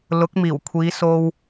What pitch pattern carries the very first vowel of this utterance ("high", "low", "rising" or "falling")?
rising